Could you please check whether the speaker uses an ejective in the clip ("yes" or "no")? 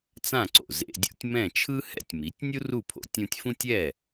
no